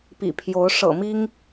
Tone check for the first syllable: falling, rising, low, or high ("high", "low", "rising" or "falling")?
low